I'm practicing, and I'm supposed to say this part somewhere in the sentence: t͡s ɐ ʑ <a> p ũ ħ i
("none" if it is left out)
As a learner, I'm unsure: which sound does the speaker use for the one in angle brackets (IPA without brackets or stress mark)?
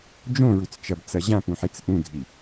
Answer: ã